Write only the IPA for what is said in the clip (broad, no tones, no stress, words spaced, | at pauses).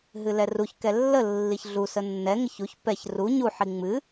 ɦɨlɛruçkɛ lːə lːiçɮusə nːɛŋɪç uç pɛç ru ɲuħi ŋ͡mɨ